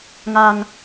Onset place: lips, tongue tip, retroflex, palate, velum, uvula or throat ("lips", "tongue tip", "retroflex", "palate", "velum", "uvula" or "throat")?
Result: velum